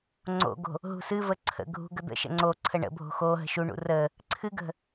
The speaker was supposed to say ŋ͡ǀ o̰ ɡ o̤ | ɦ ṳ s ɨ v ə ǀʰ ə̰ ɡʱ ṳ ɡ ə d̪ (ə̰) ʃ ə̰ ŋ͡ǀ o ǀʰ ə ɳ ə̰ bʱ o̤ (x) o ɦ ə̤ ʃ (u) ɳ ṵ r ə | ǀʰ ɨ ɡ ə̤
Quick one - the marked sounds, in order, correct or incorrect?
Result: correct, correct, correct

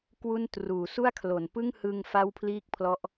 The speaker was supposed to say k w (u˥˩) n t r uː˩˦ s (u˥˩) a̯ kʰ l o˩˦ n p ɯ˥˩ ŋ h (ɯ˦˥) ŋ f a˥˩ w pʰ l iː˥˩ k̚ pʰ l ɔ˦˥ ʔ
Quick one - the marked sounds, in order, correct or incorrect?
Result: correct, correct, incorrect: ɯ˧

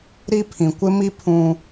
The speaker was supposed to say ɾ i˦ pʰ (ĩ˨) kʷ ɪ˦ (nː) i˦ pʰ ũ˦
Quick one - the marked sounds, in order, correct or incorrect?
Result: correct, incorrect: m

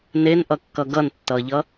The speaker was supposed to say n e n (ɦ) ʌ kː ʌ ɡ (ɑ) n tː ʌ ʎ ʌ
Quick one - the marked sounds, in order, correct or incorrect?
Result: incorrect: ʔ, incorrect: ʌ

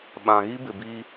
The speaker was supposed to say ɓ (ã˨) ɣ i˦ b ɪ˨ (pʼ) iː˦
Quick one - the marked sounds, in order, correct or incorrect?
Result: correct, incorrect: b

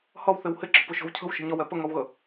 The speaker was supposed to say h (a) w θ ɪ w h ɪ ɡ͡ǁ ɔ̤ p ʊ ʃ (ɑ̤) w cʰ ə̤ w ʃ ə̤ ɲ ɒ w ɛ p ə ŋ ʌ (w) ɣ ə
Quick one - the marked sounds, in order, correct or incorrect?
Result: incorrect: ʌ, incorrect: ɔ̤, correct

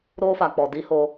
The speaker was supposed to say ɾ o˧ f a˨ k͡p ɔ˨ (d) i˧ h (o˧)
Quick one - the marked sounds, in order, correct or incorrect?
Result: correct, correct

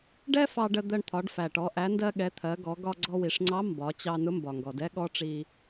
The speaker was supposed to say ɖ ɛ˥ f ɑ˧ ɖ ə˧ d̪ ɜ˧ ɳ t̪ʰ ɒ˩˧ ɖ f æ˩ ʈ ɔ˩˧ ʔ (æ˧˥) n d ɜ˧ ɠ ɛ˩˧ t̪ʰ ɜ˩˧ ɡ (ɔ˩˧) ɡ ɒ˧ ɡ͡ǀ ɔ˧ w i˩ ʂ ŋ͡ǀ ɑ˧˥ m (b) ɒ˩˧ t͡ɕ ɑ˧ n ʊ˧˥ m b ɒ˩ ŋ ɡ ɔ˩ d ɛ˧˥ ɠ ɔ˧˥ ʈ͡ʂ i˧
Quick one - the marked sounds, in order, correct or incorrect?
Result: incorrect: æ˩˧, correct, correct

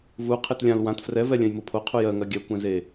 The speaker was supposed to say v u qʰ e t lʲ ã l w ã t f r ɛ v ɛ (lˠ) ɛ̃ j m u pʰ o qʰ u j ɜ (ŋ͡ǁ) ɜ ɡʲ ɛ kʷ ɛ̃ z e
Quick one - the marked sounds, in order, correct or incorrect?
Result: incorrect: lʲ, incorrect: ŋ

